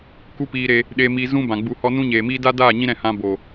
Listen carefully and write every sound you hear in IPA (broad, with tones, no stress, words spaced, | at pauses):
ku˦piː˧ɾe˧ | ɗe˧mi˧zũ˦ bã˨ɡ͡bu˧hɔ˦ nũ˦ɲeː˨miː˦ da˦daː˦˨ ɲĩ˦ɾɛ̃˦˨hã˧ bo˨